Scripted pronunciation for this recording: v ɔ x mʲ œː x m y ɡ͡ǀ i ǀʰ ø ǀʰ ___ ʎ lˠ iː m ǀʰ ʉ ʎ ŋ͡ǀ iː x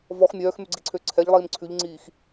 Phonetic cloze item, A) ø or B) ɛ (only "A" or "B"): B